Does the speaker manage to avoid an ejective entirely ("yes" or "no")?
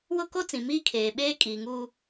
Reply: no